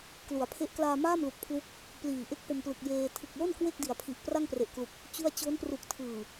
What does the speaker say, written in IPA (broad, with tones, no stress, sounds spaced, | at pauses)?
k l u˩˦ a̯ pʰ e˦˥ ʔ k l aː˧ m aː˥˩ m l u˨˩ k̚ pʰ l u˦˥ k̚ | p l iː˨˩ ʔ e˥˩ k̚ p o˧ m p l ɯ˨˩ k̚ j eː˧ tʰ ɯ˨˩ k̚ l o˥˩ n k w e˥˩ k̚ d i˩˦ a̯ pʰ i˨˩ ʔ p r a˥˩ ŋ p r e˨˩ ʔ k l u˨˩ k̚ | t͡ɕ u˥˩ a̯ t͡ɕ o˦˥ n p r u˨˩ k̚ tʰ ɯː˨˩